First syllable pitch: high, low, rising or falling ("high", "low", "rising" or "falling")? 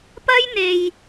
high